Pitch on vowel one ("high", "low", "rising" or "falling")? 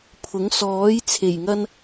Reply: rising